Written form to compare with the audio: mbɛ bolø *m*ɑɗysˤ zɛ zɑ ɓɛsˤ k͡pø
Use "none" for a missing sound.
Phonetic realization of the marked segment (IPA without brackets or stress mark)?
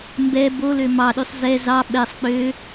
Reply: m